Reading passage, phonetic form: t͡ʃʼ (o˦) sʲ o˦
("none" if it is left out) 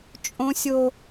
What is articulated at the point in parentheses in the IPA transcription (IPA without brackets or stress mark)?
õ˦